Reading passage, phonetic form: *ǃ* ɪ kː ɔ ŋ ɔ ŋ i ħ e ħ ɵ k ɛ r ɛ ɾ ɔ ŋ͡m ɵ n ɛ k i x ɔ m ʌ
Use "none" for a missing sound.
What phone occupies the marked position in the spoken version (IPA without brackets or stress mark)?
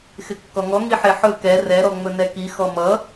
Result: x